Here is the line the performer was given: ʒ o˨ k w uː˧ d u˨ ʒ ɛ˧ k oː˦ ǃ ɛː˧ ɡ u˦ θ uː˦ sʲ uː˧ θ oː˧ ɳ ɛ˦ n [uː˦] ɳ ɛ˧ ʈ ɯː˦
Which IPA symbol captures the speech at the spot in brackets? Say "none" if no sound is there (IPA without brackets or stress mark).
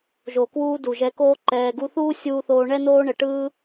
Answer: oː˦